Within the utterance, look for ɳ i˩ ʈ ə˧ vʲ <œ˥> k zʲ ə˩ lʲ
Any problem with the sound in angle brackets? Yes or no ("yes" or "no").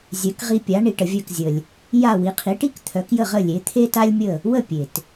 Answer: yes